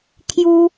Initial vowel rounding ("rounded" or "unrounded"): rounded